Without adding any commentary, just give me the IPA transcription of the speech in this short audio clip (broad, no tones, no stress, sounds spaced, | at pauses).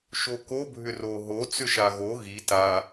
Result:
ʃ o k o bʱ ʏ r o ɦ o t͡s ʏ ʃ a ɣ o ɣ i t a